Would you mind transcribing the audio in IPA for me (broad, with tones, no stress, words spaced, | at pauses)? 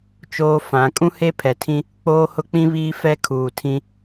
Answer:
t͡ʃoː˦fã˨˦ kʼũ˦he˦ pʰɛ˨tʰĩ˦ | k͡poː˦hʊ˦k͡pĩ˦βiː˦ fɛ˦ kʰuː˨tʰĩ˦